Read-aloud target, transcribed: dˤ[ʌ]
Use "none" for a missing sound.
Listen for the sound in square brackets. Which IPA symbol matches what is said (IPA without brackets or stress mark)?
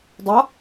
ʌ